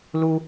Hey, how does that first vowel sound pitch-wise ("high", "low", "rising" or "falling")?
high